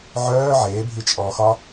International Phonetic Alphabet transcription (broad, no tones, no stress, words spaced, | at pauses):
ʕœː ʕeːbʱi t͡ʃʼɔːxɒ